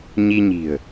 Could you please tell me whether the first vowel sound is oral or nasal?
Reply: oral